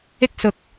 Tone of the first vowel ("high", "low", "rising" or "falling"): high